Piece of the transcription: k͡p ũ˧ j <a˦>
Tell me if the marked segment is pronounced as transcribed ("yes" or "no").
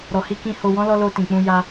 yes